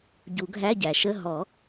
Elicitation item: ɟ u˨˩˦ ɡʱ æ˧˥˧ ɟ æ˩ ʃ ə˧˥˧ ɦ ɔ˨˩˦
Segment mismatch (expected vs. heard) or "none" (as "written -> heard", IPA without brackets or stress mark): none